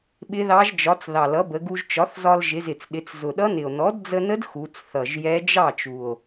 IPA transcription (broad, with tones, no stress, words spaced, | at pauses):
ɓɪ˧˥ðɑ˧˥ʒd͡ʒɒ˩˥t͡s ðɑ˨˩lʌ˩˥bə˩˧ɡu˧ʒ t͡ʃɒ˩˥θzɒ˧l ʒɪ˩˧zɪ˨˩t͡sɗɪ˩˧t͡s zʊ˨˩ɗʌ˧˥nɪ˨˩o̯ nɔ˩˥dd͡zə˧nə˧˥d xu˩˧t͡sθʌ˨˩ʒ jɛ˧˥ d͡ʒɑ˥˩t͡ʃu˨˩o̯